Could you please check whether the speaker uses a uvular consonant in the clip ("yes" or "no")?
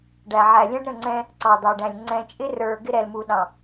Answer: no